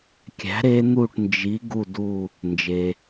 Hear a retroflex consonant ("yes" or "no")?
yes